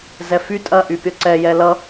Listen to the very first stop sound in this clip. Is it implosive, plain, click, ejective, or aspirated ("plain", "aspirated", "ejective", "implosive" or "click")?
ejective